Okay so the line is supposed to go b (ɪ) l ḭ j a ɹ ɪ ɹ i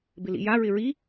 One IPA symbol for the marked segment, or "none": ɪ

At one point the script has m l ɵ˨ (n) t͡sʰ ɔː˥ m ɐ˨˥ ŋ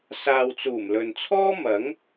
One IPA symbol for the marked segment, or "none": n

